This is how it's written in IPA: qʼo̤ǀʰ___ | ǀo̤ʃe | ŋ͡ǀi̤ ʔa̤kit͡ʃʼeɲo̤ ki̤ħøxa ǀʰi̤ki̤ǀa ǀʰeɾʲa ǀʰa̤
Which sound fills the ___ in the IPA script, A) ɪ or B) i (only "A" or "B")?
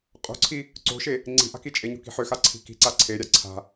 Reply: B